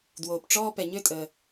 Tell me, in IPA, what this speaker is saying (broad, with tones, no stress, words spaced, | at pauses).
dwoː˩pʈ͡ʂɔː˥ pɛ˩ɲø˥tʼəː˩